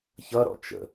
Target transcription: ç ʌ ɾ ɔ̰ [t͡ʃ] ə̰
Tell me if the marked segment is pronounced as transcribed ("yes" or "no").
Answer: yes